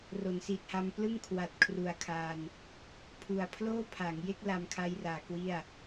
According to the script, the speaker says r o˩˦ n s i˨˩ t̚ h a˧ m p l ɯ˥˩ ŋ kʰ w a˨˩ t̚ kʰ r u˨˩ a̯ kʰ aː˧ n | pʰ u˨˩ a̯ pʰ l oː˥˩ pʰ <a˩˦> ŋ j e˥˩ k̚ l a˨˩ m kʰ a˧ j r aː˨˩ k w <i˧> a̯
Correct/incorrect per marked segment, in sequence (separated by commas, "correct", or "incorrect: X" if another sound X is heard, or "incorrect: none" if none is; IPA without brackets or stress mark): correct, incorrect: i˥˩